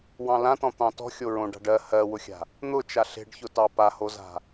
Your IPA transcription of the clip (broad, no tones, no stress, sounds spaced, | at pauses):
w ɑ̃ l ã t ɔ̃ t̪ ɑ̃ t ɔ̤ xʲ o ɹ õ ɖ a̤ ɖ ɜ h ɜ w ʊ xʲ a̤ | n̪ ʊ t͡ʃ a ɬ e̤ ɖ ç ʊ t ɑ p a h o z a̤